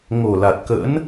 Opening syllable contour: low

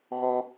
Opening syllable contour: high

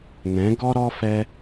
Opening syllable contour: rising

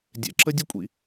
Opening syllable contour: low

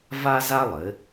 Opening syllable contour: high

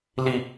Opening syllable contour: low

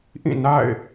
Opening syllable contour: falling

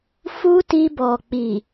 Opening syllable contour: high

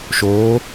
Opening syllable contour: rising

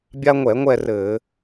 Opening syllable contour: high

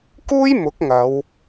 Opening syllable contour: high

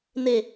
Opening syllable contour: low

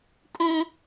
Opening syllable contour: high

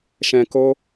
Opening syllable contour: low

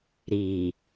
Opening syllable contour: low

